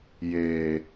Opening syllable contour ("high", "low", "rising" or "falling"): low